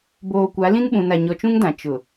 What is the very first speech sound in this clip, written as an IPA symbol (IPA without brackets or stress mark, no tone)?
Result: b